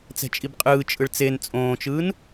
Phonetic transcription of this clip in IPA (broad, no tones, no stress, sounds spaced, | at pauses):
t͡s ɛ̤ t͡ʃʼ i b qʼ ɯː t͡ʃʼ ɯ ɭ t͡s e n t͡sʼ õː t͡ʃ ɯː n